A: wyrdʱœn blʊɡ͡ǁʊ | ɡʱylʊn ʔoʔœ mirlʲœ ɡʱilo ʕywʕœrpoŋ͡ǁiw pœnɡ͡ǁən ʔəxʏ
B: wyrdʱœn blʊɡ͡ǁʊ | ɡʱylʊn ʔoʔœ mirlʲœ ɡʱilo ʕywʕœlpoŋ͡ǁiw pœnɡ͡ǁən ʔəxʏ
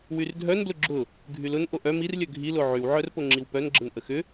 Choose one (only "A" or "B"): A